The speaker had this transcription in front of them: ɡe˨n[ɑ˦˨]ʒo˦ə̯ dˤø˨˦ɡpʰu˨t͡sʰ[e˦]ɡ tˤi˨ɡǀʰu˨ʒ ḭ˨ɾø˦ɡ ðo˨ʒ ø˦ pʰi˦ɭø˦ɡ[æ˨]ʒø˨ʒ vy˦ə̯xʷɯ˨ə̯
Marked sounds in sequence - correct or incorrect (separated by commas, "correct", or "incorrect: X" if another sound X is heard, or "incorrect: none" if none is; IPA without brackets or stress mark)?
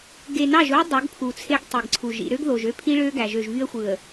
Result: correct, correct, correct